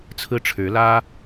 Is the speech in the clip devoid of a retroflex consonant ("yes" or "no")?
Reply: no